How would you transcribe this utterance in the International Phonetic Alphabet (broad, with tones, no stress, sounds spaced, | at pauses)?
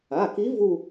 a˩˧˩ k i˧˥ v u˥˧